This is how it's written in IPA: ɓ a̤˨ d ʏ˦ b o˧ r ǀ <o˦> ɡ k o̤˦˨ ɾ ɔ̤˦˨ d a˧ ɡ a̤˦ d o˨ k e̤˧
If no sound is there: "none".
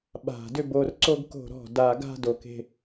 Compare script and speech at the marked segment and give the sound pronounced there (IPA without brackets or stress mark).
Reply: o˦